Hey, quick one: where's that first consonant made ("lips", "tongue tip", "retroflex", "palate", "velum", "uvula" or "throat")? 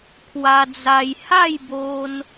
velum